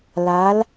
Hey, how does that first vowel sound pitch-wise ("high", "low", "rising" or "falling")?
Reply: rising